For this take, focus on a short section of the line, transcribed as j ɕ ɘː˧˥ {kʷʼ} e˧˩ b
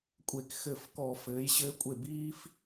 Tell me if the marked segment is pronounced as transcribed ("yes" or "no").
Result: yes